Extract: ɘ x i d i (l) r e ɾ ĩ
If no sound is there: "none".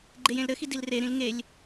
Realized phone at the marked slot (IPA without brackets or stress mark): l